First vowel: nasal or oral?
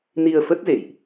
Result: oral